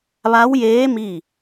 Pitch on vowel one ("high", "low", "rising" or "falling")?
rising